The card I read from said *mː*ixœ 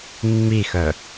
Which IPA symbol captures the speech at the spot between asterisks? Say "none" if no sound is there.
mː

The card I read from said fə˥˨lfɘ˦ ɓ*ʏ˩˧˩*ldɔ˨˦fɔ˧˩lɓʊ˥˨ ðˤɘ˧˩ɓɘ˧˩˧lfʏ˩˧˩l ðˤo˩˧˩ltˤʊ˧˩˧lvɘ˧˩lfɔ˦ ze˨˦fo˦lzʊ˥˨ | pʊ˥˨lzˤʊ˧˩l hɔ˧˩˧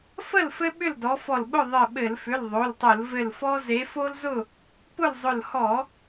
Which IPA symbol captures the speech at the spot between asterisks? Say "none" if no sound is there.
ʏ˥˨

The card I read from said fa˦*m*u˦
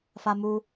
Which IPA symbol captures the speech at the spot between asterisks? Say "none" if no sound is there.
m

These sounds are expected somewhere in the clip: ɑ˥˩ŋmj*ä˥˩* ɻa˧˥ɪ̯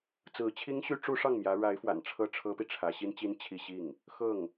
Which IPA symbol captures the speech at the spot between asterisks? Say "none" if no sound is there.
ä˧˥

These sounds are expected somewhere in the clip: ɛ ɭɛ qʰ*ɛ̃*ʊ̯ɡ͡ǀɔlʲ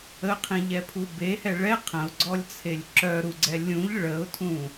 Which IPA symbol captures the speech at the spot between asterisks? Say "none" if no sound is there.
ə̃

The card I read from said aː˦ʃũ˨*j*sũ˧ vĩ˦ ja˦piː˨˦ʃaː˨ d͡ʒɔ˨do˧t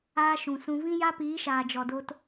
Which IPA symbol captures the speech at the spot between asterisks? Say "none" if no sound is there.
none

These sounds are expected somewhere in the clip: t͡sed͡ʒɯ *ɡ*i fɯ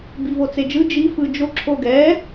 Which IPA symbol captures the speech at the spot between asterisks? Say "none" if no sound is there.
d͡ʒ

